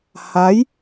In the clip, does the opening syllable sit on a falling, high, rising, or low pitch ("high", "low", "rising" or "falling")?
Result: rising